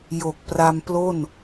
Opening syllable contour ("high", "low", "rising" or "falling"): low